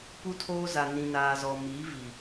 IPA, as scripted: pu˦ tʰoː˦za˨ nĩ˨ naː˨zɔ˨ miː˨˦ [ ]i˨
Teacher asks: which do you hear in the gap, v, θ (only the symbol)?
v